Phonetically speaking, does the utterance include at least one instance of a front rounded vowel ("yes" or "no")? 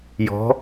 no